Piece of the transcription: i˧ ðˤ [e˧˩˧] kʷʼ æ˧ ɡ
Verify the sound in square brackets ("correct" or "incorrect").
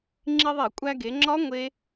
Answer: correct